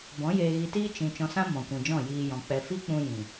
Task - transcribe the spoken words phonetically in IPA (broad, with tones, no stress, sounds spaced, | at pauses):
b ɔ̃˨˦ j eː˧ ɣ i˧ t iː˦ t͡ʃ ĩ˨ t͡ʃ ɔ̃˧ s ã˦ m ɔ̃˨ kʷ ĩ˨ d͡ʒ ɔ̃˦˨ j iː˧ j ɔ̃˨ k͡p ɛ˧ f i˦ k͡p ũ˧ j ĩ˨